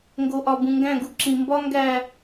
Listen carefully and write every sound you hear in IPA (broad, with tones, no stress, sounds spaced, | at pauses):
ŋ ɡ o˨ ʔ ɒ˨ b ũ˨ ŋ ɡ æ̃˦˨ ɡ u˨ ǁ ĩ˨ m b ɒ˦ ŋ ɡ æ˦˨